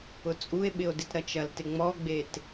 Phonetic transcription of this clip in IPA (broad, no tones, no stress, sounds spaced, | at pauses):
ʊ t͡sʼ u e̯ ɓ ɪ o̯ d ɪ t ɾ ɐ t͡ʃ ɐ l t ɪ ŋ͡m ɔ ɡ͡b e t